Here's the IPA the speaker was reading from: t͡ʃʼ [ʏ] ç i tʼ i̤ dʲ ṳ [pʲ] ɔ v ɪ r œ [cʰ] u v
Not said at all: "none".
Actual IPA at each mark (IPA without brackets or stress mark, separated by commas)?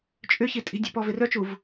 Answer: ʏ, p, t͡ʃ